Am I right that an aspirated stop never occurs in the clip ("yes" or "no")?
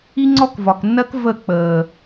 yes